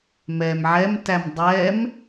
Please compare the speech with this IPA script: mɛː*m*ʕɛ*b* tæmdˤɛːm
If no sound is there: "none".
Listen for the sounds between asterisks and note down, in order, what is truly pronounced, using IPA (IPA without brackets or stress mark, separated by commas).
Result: m, m